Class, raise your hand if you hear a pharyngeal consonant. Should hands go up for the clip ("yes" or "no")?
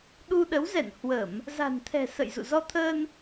no